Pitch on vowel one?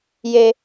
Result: high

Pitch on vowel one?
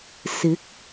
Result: rising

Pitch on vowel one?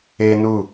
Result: high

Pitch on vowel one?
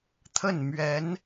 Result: falling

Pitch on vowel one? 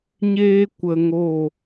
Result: high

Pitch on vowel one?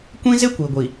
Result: high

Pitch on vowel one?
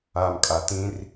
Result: low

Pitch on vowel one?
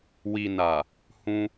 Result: low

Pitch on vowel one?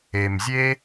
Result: low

